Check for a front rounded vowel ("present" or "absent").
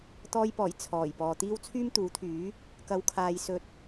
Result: present